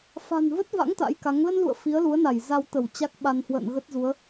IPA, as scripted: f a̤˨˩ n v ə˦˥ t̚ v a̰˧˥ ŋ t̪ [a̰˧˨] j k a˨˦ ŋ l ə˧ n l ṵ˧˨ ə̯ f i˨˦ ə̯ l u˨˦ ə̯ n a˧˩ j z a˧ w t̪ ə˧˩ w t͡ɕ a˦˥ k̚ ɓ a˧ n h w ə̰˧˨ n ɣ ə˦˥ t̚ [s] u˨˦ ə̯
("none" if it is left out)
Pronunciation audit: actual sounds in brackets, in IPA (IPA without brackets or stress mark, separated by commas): a̰˧˥, z